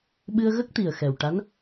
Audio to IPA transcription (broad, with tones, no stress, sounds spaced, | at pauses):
ɓ ɨ˧ ə̯ ɣ ə˦˥ k̚ t̪ i˨˩ ə̯ x ɛ˨˩ w ʈ a˧˥ n